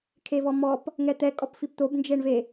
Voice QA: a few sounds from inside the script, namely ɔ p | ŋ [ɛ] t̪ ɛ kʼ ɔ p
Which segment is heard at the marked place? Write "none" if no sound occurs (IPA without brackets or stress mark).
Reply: ɛ